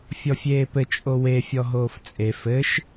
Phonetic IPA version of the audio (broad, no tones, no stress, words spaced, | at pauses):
fʲɔfʲeːpɘ t͡ʃʼowe fʲɔɦoːft͡sʼe fɘʃ